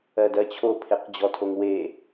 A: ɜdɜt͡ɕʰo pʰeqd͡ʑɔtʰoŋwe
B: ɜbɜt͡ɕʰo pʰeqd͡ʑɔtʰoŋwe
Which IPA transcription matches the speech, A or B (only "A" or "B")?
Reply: A